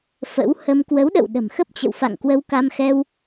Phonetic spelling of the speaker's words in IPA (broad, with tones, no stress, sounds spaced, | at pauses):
f ə̰˧˥ w h ə˧ m k w ə˨˦ w ɗ ə̰˧˨ w ɗ ə̤˨˩ m x ə˦˥ p̚ t͡ɕ ə̰˧˨ w f a̰˧˨ ŋ k w ə˧ w k a˧ m x ɛ˧ w